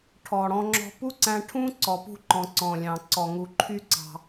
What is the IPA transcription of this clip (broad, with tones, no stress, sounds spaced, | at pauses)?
ʈʰ ɔ˩ ɽ ɔ̃˧ ŋ͡ǁ ɔ̤˧ p u˥ ǀ æ̃˧ ʈʰ ũ˥ ǀ ɔ˩ p ṳ˧ ǃ ɔ̃˩ ǀ ɔ̃˩ lʲ ɑ̃˩ ǀ ɔ˩ ŋ u˩ ǃʰ y˧ ǀ ɑ̤˩